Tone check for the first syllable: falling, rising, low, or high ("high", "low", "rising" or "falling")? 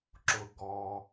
low